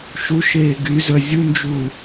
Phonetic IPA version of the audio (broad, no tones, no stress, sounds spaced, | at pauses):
ʃ u ʃ eː ɡ y z œ zʲ u n d͡ʒ u